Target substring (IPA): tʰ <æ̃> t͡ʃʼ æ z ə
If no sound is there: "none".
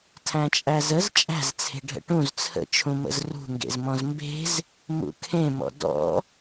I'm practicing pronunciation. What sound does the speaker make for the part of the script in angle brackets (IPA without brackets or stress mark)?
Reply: æ̃